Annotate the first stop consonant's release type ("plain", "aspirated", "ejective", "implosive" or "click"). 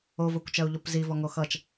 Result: plain